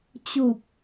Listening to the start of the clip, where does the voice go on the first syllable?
low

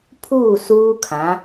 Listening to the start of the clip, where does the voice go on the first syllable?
falling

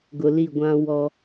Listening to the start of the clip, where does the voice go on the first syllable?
low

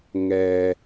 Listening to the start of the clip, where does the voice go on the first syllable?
low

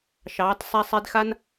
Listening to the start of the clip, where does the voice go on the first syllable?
rising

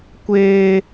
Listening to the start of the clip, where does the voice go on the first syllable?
high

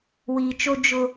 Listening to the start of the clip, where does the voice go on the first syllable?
low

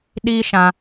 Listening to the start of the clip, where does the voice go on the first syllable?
high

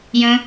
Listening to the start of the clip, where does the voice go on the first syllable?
low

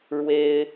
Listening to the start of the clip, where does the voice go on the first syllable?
high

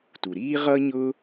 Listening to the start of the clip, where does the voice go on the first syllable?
low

